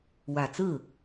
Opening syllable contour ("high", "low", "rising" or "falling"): low